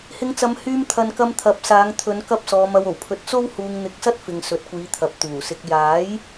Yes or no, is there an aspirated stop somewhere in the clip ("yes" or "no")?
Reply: yes